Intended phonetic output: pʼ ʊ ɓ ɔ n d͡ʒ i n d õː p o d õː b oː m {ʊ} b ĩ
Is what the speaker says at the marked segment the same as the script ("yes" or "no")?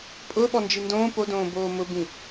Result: yes